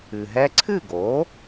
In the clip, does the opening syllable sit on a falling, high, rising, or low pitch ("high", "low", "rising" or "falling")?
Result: low